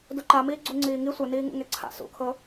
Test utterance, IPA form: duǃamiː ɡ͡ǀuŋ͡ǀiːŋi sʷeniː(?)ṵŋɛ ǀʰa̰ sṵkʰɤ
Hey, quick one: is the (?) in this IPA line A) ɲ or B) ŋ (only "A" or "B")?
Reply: B